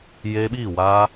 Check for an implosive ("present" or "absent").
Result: present